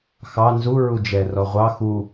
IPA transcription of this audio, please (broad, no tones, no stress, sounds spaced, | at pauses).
x ɑ n z u ɹ u d͡ʒ ɛ r ɔ ʁʷ ɑ x u